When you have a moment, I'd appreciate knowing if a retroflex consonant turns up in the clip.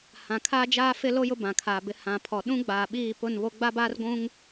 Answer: no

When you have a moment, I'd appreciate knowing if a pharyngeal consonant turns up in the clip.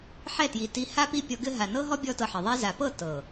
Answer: yes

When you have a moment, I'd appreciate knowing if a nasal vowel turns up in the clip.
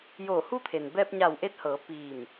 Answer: no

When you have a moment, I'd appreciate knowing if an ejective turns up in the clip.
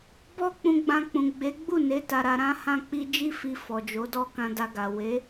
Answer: no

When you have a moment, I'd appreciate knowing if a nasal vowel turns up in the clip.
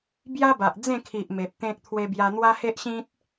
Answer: yes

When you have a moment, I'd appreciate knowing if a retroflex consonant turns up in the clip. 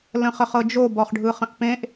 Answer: yes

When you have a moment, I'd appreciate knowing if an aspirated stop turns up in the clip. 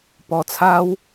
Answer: yes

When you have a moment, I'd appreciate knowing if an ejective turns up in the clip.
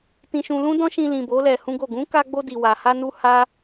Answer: no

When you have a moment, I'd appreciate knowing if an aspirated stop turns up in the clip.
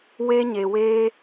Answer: no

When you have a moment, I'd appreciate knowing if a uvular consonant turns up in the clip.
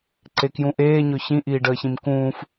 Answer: no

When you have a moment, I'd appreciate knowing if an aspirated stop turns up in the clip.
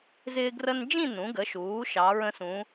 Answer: no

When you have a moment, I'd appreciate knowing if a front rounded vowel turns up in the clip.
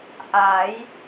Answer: no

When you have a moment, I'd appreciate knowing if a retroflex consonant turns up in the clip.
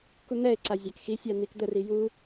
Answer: no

